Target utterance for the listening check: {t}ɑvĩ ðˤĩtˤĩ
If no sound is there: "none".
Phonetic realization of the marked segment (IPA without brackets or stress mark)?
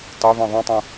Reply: t